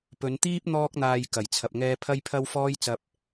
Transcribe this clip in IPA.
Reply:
p ɵ˨˧ n t̪ iː˥ p̚ n̪ ɔː˥ k̚ n̪ aː˧ j k ɐ˨˩ j t͡sʰ ɐ˧ p̚ ŋ ɛː˥ pʰ ɐ˥ j pʰ ɐ˥ w f ɔː˥ j t͡s ɐ˧ p̚

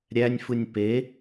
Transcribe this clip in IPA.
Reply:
ɾʲ æ nʲ f ɯ nʲ p e

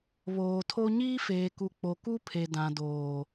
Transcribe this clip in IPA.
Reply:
β oː˨ tʰ o˦ ɲ iː˦ f eː˨ k u˨ k͡p o˨ k u˦ pʰ e˨ d ã˨ d oː˨

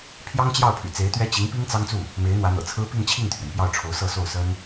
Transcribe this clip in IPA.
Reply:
pʰ j ɑ˥ ŋ t͡ɕ j ɑ˥˩ ʊ̯ pʰ y̰˨˩ t͡s e˧˥ ɪ̯ t̪ ɥ ɛ˥ t͡ɕ i˧˥ ŋ p i˥ ŋ t͡s ɑ˥ ŋ t͡s u˥˩ | m e˧˥ ɪ̯ n̪ w ä˧˥ n̪ ɤ̰˨˩ t͡sʰ ɹ̩˥ p i˥˧ ŋ t͡ɕʰ i˥˩ ŋ t̪ʰ ɥ ɛ˩ n p j ɑ˥˩ ʊ̯ ʈ͡ʂʰ o˧˥ ʊ̯ s ɤ˥˧ s o˥˩ ʊ̯ s ə˥ n

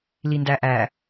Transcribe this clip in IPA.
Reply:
l i n d æ ʔ æ

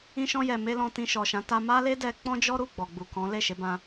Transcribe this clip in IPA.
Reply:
ĩ˧ ʃ ɔ̃˧ j ɛ˨ m e˧ l ɔ̃˧ t ĩ˧ ʃ ɔ˨ ʃ ã˨˦ t a˧ m a˦ l e˦ d ɛ˧ k͡p ɔ̃˦ d͡ʒ ɔ˦ ɾ u˦˨ ɡ͡b ɔ˨ ɡ͡b u˨ k ɔ̃˨˦ l e˦˨ ʃ e˨˦ b ã˧

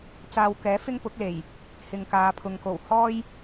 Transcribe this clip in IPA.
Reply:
t͡s aː˧ w k ɛː˨˥ f ɪ˥ ŋ p ʊ˨˥ k̚ l e˨˩ j | h ɪ˨ ŋ k aː˨˧ pʰ ʊ˨ ŋ k o˨˩ w h ɔː˥ j

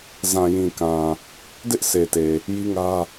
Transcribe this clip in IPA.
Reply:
z ã˨ j ĩ˨ k ã˨ | d ɪ˦ ʔ sʰ e˨ t e˨ | j i˦ ŋ ä˦

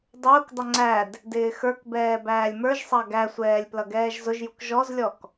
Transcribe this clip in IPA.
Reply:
dˤ ʊː k dˤ ə ŋ͡ǀ æ d | d ɪː x ə˞ k b ɛː b æː lʲ m ə˞ ʒ sˤ ɑ ɡ æ sʷ ɛː lʲ p l ʌ ɡ ɛː ʒ z ʊ ʒ j u k ʒ ɔ z lʲ ɔ k

